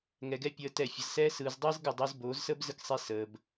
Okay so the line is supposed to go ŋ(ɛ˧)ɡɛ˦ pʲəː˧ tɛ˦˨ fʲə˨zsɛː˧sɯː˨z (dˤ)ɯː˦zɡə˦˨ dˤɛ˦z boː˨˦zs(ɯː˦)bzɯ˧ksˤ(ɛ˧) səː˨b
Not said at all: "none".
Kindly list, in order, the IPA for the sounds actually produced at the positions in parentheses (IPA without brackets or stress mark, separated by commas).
ɛ˧, dˤ, əː˦, e˧